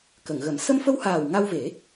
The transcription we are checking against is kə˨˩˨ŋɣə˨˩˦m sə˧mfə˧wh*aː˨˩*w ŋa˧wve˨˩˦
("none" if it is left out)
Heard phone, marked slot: aː˨˩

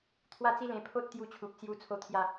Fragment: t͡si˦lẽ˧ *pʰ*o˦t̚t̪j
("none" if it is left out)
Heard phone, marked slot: pʰ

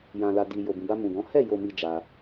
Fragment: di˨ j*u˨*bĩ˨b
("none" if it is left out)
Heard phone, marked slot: o˨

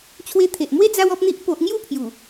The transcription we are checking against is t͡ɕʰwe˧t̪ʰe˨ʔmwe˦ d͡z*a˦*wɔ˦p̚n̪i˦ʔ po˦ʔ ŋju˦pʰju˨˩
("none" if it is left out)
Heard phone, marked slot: a˦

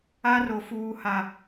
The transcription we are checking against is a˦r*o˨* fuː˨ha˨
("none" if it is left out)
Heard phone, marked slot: o˨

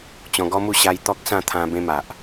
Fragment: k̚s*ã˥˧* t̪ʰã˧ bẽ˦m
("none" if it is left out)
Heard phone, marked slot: ã˥˧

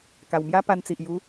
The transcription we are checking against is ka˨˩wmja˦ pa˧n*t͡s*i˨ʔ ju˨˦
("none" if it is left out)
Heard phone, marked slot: t͡s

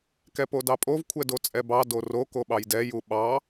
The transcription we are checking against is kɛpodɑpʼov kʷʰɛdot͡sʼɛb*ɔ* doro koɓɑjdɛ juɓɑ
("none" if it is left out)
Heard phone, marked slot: ɑ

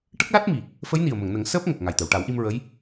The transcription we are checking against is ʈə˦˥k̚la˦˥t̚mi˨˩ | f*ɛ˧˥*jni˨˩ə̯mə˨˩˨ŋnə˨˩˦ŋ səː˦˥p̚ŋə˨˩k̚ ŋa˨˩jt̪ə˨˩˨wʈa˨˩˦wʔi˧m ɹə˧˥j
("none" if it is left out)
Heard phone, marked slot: ə˧˥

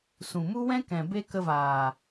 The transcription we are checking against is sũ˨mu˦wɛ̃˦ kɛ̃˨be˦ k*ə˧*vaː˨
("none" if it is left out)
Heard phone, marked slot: ə˧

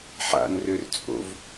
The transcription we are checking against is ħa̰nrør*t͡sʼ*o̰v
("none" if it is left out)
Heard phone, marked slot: t͡sʼ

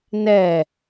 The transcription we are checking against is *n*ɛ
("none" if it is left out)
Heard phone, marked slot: n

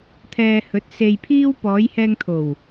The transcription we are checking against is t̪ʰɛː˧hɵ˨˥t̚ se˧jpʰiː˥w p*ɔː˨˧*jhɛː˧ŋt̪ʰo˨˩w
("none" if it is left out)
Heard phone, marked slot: ɔː˨˧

